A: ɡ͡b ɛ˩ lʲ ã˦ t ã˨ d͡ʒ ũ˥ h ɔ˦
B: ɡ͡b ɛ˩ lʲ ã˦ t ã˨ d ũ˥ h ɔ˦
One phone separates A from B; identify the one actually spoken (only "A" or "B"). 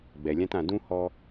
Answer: B